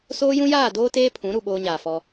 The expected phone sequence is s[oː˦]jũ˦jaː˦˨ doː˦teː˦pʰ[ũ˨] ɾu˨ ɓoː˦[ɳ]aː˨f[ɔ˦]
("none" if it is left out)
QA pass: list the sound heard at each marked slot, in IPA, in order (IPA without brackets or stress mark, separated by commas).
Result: oː˦, ũ˨˦, ɲ, ɔ˦